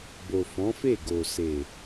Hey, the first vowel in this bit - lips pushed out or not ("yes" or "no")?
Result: yes